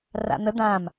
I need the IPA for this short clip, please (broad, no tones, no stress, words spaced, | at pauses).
ra̰n̪ə d̪ãm